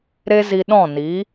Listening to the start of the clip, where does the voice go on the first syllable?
high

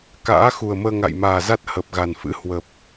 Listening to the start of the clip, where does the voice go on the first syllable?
rising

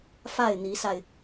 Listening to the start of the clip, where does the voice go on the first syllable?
falling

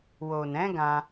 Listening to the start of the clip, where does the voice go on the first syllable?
low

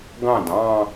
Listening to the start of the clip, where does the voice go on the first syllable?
falling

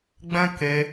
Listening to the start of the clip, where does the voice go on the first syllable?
high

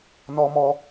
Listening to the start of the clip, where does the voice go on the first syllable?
high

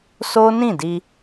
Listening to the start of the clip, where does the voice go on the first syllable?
high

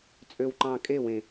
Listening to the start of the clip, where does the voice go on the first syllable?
low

